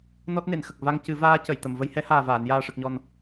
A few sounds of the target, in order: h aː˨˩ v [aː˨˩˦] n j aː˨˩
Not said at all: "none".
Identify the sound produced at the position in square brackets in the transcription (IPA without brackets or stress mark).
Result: aː˨˩˨